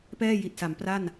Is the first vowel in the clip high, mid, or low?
mid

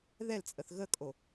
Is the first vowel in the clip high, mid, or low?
mid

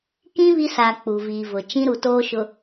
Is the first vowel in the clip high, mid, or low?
high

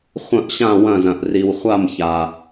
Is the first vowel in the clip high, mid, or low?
low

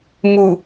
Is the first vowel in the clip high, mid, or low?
high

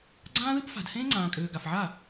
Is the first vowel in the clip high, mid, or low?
low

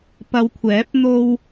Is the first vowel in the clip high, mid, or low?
low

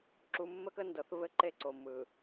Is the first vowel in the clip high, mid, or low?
high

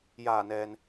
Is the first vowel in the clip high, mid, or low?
low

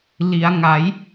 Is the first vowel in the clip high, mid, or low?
high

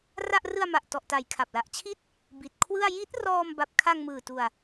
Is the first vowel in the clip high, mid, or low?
low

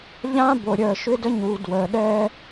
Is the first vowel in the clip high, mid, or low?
low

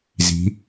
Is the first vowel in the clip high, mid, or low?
high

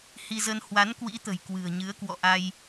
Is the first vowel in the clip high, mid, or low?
high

